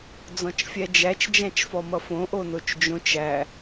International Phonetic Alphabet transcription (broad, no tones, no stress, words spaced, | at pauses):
d͡zɔ̃t͡ʃfʲæd͡ʒæt͡ʃ d͡ʒæ̃t͡ʃfɔmʌfõ ʔonot͡ʃd͡ʒõt͡ʃ æ